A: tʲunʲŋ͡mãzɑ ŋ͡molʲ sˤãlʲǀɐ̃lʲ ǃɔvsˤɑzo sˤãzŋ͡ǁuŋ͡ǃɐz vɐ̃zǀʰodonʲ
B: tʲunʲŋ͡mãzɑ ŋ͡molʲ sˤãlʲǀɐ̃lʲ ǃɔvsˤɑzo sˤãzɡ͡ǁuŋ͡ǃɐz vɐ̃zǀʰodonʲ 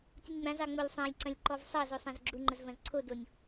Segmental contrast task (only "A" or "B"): B